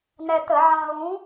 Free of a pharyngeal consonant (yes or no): no